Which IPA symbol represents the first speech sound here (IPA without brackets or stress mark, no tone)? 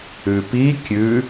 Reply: ʉ